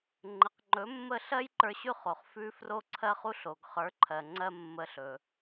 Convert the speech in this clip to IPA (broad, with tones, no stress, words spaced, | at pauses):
ŋ͡ǃə˩qŋ͡ǃɵ˩˥mːə˥˩ ɬɜ˥jǃə˞˧ɕʉ˥˩χo˩χ fʉ˧ fro˥ǀʰɜ˥χu˥ɬo˩ɡ χə˞˩˥ǃʰɜ˩ ŋ͡ǀɜ˥mːə˧ɬɵ˩